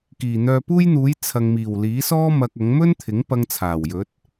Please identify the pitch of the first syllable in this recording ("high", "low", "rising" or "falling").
low